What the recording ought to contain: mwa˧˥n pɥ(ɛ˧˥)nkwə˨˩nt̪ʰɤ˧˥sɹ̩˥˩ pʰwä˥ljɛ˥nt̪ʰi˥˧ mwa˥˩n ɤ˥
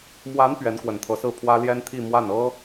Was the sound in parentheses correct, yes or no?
yes